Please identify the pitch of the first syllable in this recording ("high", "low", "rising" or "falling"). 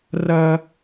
high